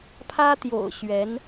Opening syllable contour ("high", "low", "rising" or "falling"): high